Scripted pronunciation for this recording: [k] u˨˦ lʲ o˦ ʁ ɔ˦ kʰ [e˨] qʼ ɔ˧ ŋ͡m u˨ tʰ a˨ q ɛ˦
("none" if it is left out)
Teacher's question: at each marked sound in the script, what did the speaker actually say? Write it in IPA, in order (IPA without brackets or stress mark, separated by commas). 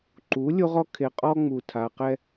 ǃ, e˨